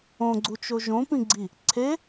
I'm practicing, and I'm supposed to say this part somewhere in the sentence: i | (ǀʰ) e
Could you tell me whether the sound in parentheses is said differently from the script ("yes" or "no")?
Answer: no